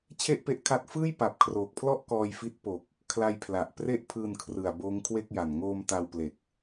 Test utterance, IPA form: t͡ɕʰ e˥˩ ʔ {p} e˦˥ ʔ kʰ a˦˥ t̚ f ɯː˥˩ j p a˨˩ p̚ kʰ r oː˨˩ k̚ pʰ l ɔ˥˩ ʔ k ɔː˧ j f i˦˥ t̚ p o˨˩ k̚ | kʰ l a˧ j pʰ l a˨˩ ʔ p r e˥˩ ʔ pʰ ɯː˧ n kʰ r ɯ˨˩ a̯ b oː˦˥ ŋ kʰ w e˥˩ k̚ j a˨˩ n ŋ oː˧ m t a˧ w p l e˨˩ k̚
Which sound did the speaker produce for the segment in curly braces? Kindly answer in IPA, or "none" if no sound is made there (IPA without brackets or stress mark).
p